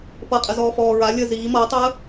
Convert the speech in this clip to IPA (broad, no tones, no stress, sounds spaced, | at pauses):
p ʌ qʼ ə z ɔː f ɔː ɹ a lʲ ə z iː m ʌː tˤ əː